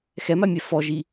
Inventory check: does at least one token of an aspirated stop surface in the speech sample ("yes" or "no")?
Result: no